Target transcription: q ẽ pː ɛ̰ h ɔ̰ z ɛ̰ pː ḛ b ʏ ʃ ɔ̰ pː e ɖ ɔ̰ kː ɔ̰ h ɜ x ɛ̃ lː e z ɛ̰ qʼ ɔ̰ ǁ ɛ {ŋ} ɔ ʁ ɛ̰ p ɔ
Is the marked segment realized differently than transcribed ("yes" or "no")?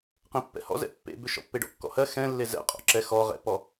yes